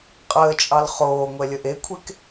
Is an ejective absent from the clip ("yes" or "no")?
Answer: no